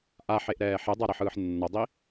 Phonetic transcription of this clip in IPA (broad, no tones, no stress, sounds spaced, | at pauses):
ʔ a ħ e ʔ ɾ ɛː ħ e dˤ a ɾ ʌ ħ ɯː ħ nː ʌ dˤ i